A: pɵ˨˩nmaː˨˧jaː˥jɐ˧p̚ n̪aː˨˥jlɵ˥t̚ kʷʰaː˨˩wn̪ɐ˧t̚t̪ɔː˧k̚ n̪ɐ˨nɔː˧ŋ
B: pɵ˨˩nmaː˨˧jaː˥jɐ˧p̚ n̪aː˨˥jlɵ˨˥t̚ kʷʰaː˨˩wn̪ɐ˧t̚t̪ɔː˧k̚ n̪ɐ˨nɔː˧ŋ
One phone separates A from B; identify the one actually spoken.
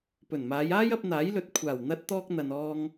B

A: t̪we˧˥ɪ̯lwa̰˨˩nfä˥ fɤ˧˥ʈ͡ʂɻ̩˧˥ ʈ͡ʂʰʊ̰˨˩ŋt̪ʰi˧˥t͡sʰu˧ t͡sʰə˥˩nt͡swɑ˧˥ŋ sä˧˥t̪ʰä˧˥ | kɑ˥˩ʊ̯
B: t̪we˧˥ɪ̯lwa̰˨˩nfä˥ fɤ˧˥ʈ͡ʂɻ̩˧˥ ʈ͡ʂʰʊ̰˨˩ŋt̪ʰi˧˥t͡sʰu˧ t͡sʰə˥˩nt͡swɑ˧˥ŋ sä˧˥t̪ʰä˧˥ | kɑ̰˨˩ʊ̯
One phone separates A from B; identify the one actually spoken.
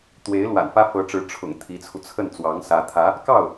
A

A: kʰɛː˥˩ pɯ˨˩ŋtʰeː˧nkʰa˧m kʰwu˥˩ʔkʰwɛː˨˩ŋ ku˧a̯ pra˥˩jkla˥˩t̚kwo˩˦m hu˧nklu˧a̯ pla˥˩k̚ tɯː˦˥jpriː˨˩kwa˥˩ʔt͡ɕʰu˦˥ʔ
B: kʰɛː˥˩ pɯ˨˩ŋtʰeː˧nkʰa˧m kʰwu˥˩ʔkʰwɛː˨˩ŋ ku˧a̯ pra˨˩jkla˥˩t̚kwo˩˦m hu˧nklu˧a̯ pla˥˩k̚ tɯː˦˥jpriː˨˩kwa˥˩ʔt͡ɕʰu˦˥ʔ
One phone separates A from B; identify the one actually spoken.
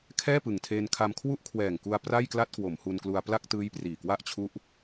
A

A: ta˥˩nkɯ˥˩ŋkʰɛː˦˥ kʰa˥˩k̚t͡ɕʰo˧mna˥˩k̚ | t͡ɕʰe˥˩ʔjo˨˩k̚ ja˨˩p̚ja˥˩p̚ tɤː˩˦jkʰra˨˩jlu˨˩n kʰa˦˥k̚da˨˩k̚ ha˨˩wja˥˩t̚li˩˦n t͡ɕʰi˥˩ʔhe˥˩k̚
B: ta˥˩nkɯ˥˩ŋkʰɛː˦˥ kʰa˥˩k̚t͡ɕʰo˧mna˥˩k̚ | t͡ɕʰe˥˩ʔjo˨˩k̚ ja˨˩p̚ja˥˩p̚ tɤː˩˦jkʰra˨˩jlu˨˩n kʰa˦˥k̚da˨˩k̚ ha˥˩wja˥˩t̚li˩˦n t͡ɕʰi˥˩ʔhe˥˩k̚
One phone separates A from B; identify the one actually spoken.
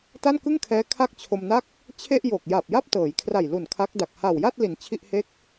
A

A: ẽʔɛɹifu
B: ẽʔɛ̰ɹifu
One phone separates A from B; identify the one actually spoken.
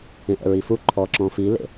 B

